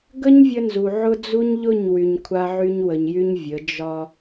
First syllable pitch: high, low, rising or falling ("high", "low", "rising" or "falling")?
high